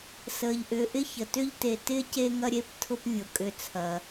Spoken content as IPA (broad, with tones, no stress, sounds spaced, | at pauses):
s əː˨ ʎ ʔ ʏː˨ ʔ ɪ˥ ç ə˩ t ʏ˦ ʎ t e˨ t ɪː˥ c e˦ ŋ ɐ˦ ɾʲ e˦ p tʰ ʊ˦ p vʲ ʊ˩ kʼ ʏ˨ t͡sʰ ɐ˩